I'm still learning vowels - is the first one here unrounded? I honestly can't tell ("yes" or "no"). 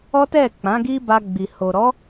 no